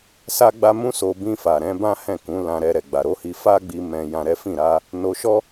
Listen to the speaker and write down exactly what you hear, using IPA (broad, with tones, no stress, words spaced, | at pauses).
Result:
sa˦ɡ͡ba˦ mũ˦so˧bĩ˧fa˨ ɾɛ̃˨˦bã˦hɛ̃˦˨kũ˨˦ lã˧ɾɛ˧ ɾɛ˨ɡ͡ba˨ɾo˨˦hi˧ fa˦ɡ͡bi˧ mɛ̃˧jã˧ɾɛ˦fĩ˦˨ ɾa˧ | no˧ʃɔ˦